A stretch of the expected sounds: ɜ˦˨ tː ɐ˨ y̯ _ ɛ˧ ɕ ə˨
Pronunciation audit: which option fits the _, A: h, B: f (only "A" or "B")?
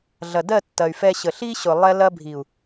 B